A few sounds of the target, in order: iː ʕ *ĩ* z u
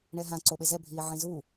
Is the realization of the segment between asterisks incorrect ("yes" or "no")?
no